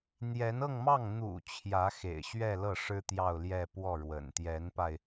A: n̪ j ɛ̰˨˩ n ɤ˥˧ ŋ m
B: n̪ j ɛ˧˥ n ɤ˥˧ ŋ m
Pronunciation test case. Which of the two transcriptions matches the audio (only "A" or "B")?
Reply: B